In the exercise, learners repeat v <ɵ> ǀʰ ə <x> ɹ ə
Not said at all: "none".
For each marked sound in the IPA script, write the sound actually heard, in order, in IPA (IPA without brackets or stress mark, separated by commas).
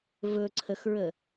ɵ, x